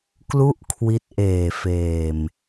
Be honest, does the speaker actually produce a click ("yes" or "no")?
no